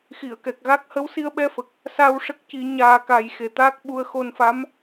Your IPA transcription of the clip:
x i˨˩˨ ə̯ k ɛ˨˩ k̚ ɣ a˦˥ k̚ h ə˧˥ w s i˧ ə̯ ɓ ɛ˧ f ə˨˩ k̚ | s a˧ w ʂ ə˦˥ k̚ c i˨˩˦ ɲ aː˨˩ k a˨˩ j x e˨˩ t̪ aː˦˥ k̚ ɓ u˧ ə̯ x o˧ n f a˧˥ m

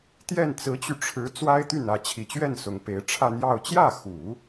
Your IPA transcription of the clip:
t̪ j ɛ˥˩ n t͡s ɹ̩˧˥ t͡ɕ y˧ ʈ͡ʂʰ ɻ̩˧˥ t͡s w a˥ ɪ̯ t̪ y˥˩ n ä˧˥ t͡ɕʰ i˨˩ t͡ɕ ɥ ɛ˥˩ n s ʊ˧˥ ŋ p e˧˥ ɪ̯ ʈ͡ʂʰ ä˥˧ n̪ j ɑ˥˧ ʊ̯ t͡ɕ j ä˥˩ x u˨˩˦

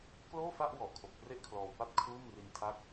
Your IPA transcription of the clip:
k l oː˥˩ f a˥˩ ʔ w ɔ˨˩ ʔ kʰ o˨˩ k̚ p r e˥˩ ʔ kʰ l ɔː˧ w p a˥˩ t̚ kʰ uː˥˩ m r i˧ n tʰ a˦˥ k̚

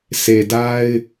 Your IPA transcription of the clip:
sʰ e˨ d a˦ ɪ̯

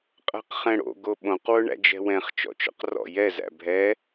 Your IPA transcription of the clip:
qʼ æ̤ q χ ɛ̃ ɽ o̰ ɡ o ɓ õ q w ʊ ɳ æ̰ d͡ʒ ɛ̤ w ɛ̃ χ t͡ʃ ɔ̰ t͡ʃ ɔ̰ q r ɔ̰ j ɛ z æ̰ bʱ ɛ

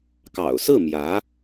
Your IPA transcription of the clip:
k ɑ̰˨˩ ʊ̯ s ɹ̩˥˩ m j ä˧˥

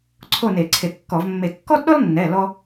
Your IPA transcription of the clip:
ǀʰ o˥˨ n e˧˩˧ ǀʰ e˧˩ kː ɔ˧˩˧ v mː e˧˩ kː ɔ˥ d ɗ ɔ˥ l nː ɛ˩˧˩ l ɔ˥

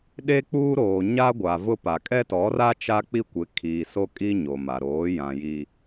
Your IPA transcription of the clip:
ɗ e˦ k͡p uː˦ ɾ oː˨ ɲ a˦ ɡʷ a˨ v ʊ˦ p a˨ kʼ ɛ˦ t ɔ˨˦ r a˦ t͡ʃ a˦ k͡p i˦ kʷ ɪ˨˦ kʰ iː˨ s o˦ kʼ i˦ ɲ o˨ m a˨ ɾ oː˨˦ j ã˨ j i˨

